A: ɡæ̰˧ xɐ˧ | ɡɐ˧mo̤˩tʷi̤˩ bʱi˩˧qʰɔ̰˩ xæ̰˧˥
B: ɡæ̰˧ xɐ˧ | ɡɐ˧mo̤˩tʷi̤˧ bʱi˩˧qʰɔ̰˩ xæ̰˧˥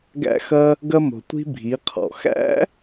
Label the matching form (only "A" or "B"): B